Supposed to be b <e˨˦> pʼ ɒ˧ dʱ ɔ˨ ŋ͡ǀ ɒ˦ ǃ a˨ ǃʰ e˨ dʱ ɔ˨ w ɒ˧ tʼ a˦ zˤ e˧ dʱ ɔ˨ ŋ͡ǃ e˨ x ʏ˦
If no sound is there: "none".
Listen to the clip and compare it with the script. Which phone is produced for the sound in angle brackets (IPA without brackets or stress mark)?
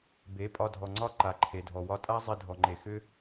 e˨˦